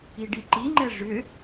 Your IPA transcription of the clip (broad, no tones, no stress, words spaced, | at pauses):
iɖiǃiŋ͡ǃɛ ʐʏ